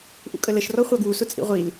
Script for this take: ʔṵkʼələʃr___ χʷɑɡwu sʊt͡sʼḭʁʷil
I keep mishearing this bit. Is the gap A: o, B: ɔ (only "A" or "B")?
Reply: B